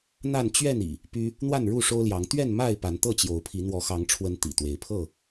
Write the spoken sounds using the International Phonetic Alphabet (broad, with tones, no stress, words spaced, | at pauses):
n̪a˥˨n t͡ɕɥɛ˥˨n ḭ˨˩ | py˦ | n̪wa˥˨nɻu˥˨ʂo˦ʊ̯ljɑ˨˦ŋ t̪ɥɛ˥˨nma˥˨ɪ̯ pa˨˦nt̪ɤ˥˨t͡ɕjo˨˦ʊ̯pʰi˨˦ n̪wɔ˨˦xɑ˨˦ŋʈ͡ʂʰwə˨˦n t̪ḭ˨˩t̪we˨˦ɪ̯ pʰɤ˥˨